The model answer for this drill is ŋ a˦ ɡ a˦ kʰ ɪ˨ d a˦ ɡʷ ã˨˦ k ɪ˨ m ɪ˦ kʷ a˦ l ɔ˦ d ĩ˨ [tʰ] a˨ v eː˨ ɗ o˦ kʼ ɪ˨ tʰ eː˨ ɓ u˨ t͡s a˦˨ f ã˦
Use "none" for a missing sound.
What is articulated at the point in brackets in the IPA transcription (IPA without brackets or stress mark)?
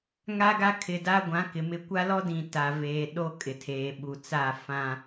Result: t